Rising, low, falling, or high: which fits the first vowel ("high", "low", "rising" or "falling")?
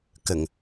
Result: low